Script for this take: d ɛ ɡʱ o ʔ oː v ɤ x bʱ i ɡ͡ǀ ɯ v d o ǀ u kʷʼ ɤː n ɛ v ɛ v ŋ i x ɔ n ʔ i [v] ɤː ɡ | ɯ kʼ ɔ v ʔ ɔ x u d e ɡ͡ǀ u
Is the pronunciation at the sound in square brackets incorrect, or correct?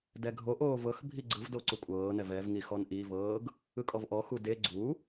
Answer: correct